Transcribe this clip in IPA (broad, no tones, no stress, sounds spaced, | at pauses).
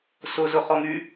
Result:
s ʊ z ʊ χ ɔ ŋ y